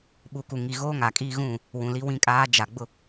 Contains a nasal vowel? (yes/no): yes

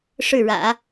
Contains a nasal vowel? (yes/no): no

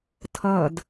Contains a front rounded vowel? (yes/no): no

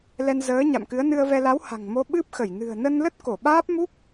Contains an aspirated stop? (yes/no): no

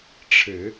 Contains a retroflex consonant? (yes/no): yes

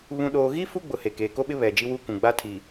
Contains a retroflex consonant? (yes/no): no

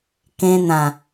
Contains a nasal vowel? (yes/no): yes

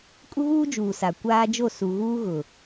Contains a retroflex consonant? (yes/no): no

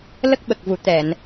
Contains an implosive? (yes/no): yes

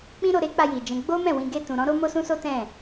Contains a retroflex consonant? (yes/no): no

